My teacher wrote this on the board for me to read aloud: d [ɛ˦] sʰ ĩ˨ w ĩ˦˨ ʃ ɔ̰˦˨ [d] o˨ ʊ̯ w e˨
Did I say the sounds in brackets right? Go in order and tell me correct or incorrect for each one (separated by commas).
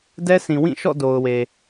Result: correct, correct